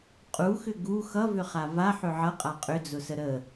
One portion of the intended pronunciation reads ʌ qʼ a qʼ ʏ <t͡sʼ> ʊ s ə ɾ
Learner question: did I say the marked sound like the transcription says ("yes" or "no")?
no